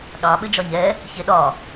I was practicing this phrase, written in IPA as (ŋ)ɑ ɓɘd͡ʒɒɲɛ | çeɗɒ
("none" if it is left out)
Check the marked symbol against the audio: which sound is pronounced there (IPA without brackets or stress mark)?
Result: ɠ